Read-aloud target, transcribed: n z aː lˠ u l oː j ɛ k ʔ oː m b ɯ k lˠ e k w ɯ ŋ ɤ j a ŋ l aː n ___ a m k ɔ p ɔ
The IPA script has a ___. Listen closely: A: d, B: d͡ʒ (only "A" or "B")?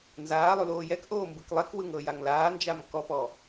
B